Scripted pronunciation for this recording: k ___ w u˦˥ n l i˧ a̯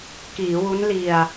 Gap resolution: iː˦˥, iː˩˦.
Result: iː˩˦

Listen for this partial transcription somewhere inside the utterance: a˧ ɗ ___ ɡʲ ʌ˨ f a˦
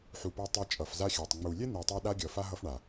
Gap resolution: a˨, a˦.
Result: a˦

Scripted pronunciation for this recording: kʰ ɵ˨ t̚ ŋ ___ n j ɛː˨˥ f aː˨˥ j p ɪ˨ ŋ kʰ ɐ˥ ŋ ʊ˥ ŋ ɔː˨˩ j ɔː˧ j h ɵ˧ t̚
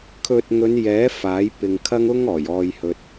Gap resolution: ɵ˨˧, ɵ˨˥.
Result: ɵ˨˧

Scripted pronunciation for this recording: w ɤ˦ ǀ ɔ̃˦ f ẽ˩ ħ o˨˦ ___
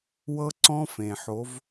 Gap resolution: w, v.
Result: v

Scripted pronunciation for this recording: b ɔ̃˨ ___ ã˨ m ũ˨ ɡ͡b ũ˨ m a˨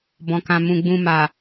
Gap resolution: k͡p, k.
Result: k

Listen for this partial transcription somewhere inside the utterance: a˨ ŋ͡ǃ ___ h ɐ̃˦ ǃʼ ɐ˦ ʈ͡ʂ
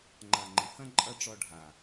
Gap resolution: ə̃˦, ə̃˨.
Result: ə̃˨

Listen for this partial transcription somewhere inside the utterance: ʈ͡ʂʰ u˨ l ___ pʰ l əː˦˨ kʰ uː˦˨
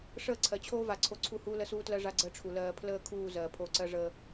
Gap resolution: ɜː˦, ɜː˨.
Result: ɜː˨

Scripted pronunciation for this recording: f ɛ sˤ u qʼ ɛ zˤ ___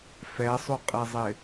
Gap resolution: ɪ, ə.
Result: ɪ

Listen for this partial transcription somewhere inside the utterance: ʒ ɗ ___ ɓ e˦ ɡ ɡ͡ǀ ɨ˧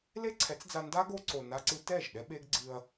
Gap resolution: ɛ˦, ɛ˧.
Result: ɛ˦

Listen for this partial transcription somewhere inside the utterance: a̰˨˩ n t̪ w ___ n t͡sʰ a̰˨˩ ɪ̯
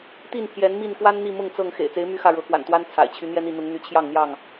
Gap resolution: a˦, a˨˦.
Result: a˦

